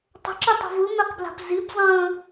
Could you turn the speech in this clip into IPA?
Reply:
tˤə̤ǁɯtˤa̤ vɯmɛqbla̤p zibzˤə̃ː

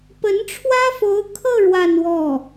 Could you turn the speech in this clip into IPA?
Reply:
pə˧˥nʈ͡ʂʰwä˥fo˧˥ʊ̯kʰɤ˥˧ ɻwa˥˧nwɔ˥˩

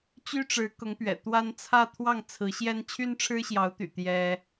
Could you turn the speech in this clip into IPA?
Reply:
t͡ɕy˥ʈ͡ʂɻ̩˧˥ kʊ˧˥ŋpɥɛ̰˨˩t̪wa˥n t͡sʰä˥˧t̪ʰwɑ˥˩ŋ t͡sʰɹ̩˧˥ɕjɛ˥n t͡ɕʰy˥nʈ͡ʂʰɻ̩˥ɕjɑ˧˥ʊ̯t̪y̰˨˩ t̪jɛ˥

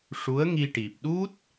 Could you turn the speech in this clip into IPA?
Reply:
ʂu˧˥ə̯ŋi˧ ʈi˨˩p̚ɗu˦˥t̚

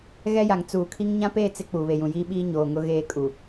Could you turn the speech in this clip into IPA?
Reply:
ɣɛ˦ja˨ŋ t͡suː˨kʰi˦ŋ ɲã˦peː˦˨ t͡sɪ˦ k͡puː˨βe˨jũ˨ jiː˦ɓiː˦ ɲoː˨ŋʊ˦ ɣeː˦˨kʼu˨

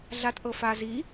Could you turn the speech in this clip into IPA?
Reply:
ɮat ʔɤfa zi

